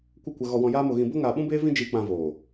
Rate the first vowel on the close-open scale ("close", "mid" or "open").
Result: mid